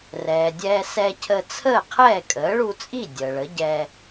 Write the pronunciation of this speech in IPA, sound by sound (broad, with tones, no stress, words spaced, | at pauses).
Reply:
rɛː˩dʲɛː˧ sɛ˧cʰə˧ t͡sʰəː˥˩qʰɛː˥˩ kʼəː˩˥ɭu˧t͡sʼi˥˩ dʲəː˩ɭə˩˥ɟɛː˧